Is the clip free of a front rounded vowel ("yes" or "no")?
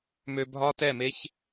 no